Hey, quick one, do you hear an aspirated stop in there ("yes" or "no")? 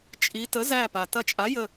no